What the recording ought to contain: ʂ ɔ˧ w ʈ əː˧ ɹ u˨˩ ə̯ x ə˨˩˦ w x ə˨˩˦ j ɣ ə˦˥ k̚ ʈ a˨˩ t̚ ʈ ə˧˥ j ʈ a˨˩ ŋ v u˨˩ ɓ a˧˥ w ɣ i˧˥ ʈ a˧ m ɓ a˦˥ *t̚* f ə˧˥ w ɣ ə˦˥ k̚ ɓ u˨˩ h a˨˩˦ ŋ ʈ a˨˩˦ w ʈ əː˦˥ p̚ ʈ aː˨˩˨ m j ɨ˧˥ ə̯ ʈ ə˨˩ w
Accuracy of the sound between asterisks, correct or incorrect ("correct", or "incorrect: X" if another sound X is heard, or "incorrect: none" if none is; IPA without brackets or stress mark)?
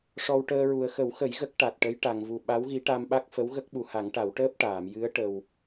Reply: incorrect: k̚